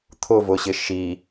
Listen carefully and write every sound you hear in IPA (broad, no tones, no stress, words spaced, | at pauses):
t̪ʰʊvʊɕɪ ʃi